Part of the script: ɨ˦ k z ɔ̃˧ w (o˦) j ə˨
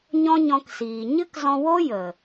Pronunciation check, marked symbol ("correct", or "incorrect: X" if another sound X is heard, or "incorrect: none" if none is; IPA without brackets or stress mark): correct